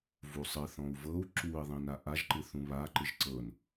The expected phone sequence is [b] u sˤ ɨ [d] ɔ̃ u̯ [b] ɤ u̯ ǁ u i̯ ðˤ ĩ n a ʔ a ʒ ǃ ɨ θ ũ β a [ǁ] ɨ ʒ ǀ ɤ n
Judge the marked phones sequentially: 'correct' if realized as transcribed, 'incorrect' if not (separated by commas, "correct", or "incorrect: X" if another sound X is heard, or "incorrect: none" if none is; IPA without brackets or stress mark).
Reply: incorrect: v, incorrect: θ, incorrect: v, incorrect: ǃ